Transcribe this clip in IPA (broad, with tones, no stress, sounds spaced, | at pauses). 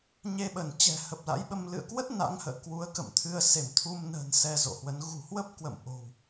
ɲ e˧ ɓ ə˧˩ n t͡ɕ ɛ̤˨˩ h ə˨˩ p̚ l a̰˧˥ j ɓ ə˧ m l ɨ̰˧˨ ə̯ k w ə˦˥ t̚ n a̰˧˥ ŋ h ə̰ː˧˨ k w u˨˦ ə̯ k ə̰˧˨ m t̪ʰ ɨ˧ ə̯ s e˧˩ m t̪ʰ u˧ m n ə̤ː˨˩ n s ɛ˧ z o̰˧˨ h w ə˨˦ n ɣ ṳ˨˩ h w ə˦˥ p̚ k w ə̰˧˨ m ʔ o̤˨˩ w